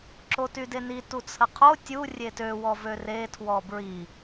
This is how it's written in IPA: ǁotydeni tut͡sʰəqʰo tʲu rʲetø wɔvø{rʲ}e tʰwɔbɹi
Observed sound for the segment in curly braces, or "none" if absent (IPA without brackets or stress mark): r